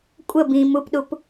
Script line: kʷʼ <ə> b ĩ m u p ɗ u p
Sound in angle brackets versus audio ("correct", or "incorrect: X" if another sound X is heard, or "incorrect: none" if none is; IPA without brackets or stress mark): correct